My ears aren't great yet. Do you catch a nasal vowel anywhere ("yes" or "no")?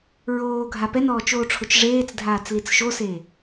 no